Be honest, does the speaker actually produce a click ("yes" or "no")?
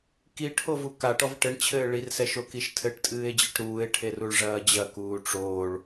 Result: no